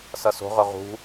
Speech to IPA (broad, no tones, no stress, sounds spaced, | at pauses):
s ʌ s o̤ ʁ ɵ ʁ ṳ